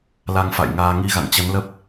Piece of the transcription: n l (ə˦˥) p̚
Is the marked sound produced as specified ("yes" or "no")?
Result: yes